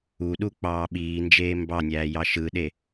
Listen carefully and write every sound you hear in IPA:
u ɗ u k͡p ɑː ɓ iː n d͡ʒ eː m b ɑ nʲ æː j ɑ ʃ ɯ ɗ e

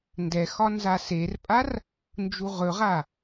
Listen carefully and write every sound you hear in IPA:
n d ɛ x ɒ n z a s e r pʼ a r | n d͡ʒ u ʁ ɵ ʁ a

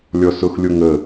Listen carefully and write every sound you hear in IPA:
lʲ ɔ s ʊ x lʲ o ŋ ə

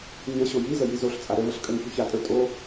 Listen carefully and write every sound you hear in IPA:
ɲ ə ɕ o j i z ə j i z o ɬ t͡sʼ a ɾ ə v ə ɬ kʼ ə ŋ ç u ç a tʼ ə˞ tʼ o

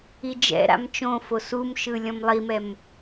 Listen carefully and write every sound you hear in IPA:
i d͡ʒ ɛ̰ ɾ a̰ m t͡ʃ õ f o s u m ʃ ɯ lʲ ɔ̃ m lˠ i m ɛ m

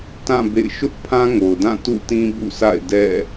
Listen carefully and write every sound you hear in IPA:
t ã˦˨ b ḛ˦˨ ɪ̯ ʃ ʊ˦ ʔ pʰ ã˦ ŋ o˨ ʊ̯ d ã˦˨ t ṵ˦˨ t ĩ˦ b ṵ˦˨ s a̰˦˨ ɪ̯ d ɛ̰˦˨

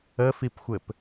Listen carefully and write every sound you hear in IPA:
ə f i p xʷ ɘ p

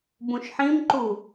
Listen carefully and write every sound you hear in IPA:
b ũ ʃ ħ ĩ m ǃ u

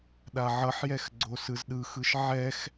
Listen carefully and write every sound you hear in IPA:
ɗ a ʕ ʌ ħ j ɛ x ɡ͡ǀ o s ɯ z ɗ ɯ x ɯ ʃ ʕ ɛ x

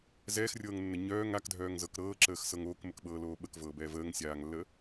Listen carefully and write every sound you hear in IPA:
z ɛː x rʲ ɤː ŋ nː ə ɲ œː ŋ a k dʱ œː ŋ z ɤ k ɾ ɤː ǁ əː x s ɤ ŋ oː k m ə k ɓ ɤː l oː ɓ ə k v ɤː b ɛː v əː ŋ sʲ aː ŋ lː əː

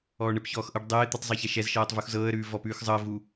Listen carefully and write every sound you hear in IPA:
ɔː ɳ ɘ p ç ɔː x ʔ ɤ ɖ dˤ ɘː ɪ̯ t̪ ɘ tˤ zˤ ɤ ç ɛ ʃ ɛ z ʃ ɤː tˤ v u x z ɤː ə̯ ɾ ʉː v ɔ p ʉː x zˤ ɤ ə̯ v u

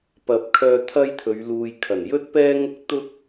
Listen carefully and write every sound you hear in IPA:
p ɐ˨˥ p̚ kʰ œː˧ t̪ʰ ɐ˥ j t̪ʰ ɵ˨˧ ɥ l uː˨ j kʰ ɐ˨˩ n j ɵ˥ t̚ p ɛː˥ ŋ ʊ˥ k̚ t̪ ʊ˥ k̚

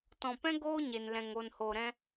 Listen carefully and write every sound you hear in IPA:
t ɔ̃˨ p ɛ̃˦ ɡ oː˦ ɲ e˨ n l ɛ̃˨ ŋ o˨ n h o˨ ɾ ɛ̃˧

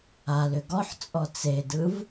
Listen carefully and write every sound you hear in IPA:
a l ʏ ɡ ɔ ħ t͡sʼ ɔ t͡s e d ɯ v

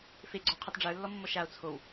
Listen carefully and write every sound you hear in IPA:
f e ɡ͡ǀ ɔ qʰ ɘ tˤ ɖ͡ʐ ə˞ lː ɔ mː ɔ ʃ a o̯ t͡sʰ o w

